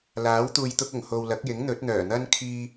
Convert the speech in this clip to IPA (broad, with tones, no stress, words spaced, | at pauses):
laː˨˥w t̪uː˨jt̪ʊ˧k̚ʊ˨˩ŋ ho˨wlɐ˨˥k̚jɪ˨˥ŋ n̪ɵ˨˥t̚n̪œː˨˩n̪ɐ˥n kʰiː˧